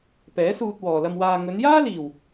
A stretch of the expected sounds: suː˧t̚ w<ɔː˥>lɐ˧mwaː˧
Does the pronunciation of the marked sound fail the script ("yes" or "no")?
yes